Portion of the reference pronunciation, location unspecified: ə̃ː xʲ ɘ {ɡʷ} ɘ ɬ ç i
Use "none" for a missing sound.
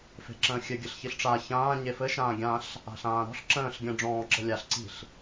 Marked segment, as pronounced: ɡʲ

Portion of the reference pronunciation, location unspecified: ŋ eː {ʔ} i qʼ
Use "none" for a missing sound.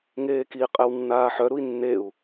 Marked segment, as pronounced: k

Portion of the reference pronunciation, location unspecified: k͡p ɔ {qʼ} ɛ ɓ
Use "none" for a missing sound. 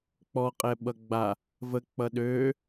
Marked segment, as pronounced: qʼ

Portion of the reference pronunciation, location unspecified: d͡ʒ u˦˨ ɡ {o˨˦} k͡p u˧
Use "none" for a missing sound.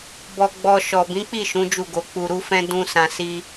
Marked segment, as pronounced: o˨˦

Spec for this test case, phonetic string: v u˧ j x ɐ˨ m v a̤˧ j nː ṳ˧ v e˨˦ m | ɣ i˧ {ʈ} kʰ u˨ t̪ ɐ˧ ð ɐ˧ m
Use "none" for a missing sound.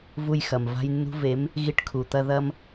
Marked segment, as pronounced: ʈ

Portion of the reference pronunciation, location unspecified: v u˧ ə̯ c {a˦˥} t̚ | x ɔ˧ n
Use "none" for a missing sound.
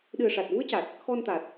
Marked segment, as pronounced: a˨˩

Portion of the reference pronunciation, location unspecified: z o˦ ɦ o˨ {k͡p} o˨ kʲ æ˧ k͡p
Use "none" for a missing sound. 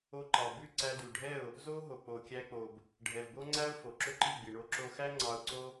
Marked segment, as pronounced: k͡p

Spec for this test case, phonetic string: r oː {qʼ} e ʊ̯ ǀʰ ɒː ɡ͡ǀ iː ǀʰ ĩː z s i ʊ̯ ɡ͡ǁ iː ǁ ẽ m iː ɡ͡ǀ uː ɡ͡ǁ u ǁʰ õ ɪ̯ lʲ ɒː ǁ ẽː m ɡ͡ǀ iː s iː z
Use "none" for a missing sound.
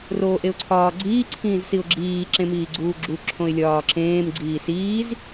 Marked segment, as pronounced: ʔ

